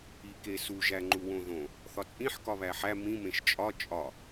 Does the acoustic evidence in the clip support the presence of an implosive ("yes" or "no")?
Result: no